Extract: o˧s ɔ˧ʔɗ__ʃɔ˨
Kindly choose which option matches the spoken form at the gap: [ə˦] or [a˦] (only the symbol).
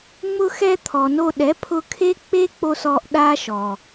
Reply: a˦